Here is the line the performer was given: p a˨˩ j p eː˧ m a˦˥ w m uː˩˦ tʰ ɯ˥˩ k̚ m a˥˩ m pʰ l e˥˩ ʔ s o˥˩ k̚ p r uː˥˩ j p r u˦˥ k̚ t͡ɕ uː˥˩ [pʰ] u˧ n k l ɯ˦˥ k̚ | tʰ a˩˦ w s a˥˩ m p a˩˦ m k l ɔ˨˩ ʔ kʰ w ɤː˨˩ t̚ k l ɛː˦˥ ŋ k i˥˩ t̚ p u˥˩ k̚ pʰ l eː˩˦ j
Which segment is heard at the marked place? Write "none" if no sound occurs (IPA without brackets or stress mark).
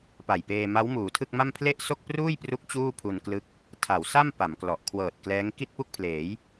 pʰ